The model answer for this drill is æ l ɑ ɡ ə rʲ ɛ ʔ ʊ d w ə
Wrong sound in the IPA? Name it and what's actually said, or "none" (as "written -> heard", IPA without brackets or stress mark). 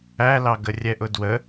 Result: none